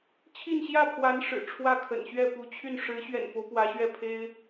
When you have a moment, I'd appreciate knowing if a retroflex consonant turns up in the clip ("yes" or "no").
yes